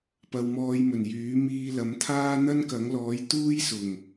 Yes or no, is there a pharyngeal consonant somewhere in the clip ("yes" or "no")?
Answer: no